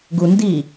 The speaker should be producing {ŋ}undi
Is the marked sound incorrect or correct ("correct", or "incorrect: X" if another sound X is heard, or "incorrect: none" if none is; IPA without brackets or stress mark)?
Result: incorrect: ɡ